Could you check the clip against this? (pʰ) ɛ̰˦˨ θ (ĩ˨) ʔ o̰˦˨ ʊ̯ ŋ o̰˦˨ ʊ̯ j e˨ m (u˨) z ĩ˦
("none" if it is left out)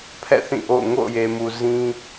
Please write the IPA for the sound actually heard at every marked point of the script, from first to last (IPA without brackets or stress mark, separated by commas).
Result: pʰ, ĩ˦˨, u˨